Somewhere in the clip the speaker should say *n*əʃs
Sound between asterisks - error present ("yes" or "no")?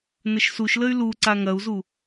no